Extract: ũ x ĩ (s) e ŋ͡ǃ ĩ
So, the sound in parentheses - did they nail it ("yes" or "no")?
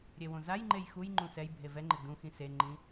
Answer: yes